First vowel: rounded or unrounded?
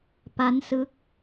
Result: unrounded